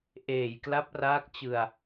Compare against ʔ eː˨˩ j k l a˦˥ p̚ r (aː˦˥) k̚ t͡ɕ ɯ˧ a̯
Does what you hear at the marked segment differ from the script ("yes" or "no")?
no